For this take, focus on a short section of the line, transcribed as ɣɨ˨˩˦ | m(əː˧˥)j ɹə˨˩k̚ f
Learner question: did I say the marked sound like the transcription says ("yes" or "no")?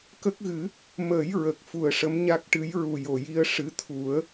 no